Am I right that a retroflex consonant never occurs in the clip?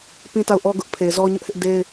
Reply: yes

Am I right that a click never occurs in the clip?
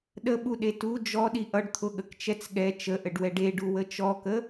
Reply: yes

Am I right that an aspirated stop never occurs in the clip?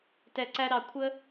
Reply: no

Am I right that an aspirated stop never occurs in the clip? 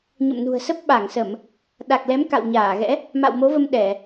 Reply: yes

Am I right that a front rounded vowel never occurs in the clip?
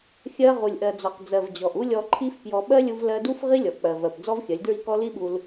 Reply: yes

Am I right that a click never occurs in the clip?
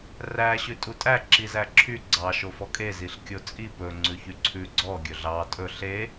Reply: no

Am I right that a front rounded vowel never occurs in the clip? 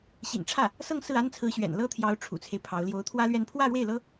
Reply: yes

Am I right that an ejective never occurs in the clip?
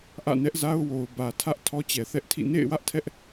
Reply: yes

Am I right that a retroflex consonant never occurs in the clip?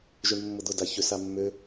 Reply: no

